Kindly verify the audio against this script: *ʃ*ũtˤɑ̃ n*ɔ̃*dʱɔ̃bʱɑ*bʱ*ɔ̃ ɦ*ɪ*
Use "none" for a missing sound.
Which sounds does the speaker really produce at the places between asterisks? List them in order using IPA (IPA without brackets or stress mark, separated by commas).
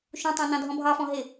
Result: ʃ, ɑ̃, f, ɪ